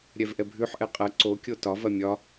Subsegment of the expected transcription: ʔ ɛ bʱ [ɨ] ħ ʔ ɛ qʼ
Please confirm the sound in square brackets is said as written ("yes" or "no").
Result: no